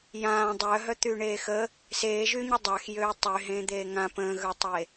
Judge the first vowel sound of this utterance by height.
low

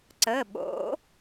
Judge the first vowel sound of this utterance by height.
mid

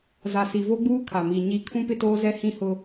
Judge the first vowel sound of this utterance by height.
low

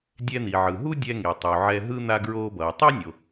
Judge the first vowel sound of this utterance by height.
mid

